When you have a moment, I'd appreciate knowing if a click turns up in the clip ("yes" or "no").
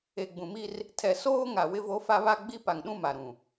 no